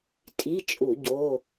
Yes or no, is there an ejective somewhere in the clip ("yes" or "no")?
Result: yes